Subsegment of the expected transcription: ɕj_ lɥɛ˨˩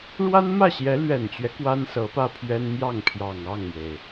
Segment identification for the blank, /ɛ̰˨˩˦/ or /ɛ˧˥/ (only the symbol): ɛ˧˥